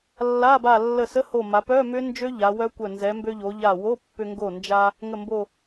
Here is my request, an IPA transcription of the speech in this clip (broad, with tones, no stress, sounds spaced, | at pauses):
lː a˧˥˧ b a˧˩ lː ə˧˩ s ə˧˥˧ h o˧˩ m a˩˧ p œ˧˥˧ m ʏ˦˥ n d͡ʒ ø˦˥ ʎ a˩˧ w œ˦˥ kʷ œ˧˩ n z ɛ˩˧ m b ø˧ ʎ o˩˧ ʎ a˧˩ w o˧˥˧ pː ʏ˧ ŋ ɡ o˧˩ n d͡ʒ a˧ | ŋ ə˧˩ m b o˧˩